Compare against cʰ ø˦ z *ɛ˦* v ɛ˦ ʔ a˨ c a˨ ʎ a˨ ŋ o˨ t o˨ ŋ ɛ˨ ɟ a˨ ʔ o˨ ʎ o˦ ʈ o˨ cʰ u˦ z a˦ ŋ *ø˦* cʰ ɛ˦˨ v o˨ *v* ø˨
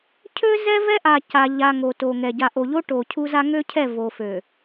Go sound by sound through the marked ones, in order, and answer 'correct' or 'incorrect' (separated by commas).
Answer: correct, correct, incorrect